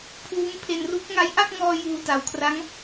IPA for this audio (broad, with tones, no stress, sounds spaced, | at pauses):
pʰ uː˦˥ m pʰ e˧ n r u˦˥ k̚ ŋ a˦˥ j ʔ a˥˩ k̚ ŋ ɔː˧ j uː˧ t a˨˩ w kʰ r a˦˥ ŋ